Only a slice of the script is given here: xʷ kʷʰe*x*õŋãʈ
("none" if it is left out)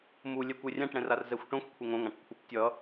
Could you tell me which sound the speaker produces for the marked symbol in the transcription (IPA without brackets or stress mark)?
ŋ